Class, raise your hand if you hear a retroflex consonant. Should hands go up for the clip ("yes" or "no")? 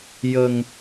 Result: no